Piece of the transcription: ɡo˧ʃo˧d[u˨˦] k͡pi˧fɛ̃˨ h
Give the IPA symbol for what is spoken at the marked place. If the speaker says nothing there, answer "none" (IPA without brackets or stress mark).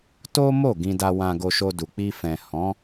u˨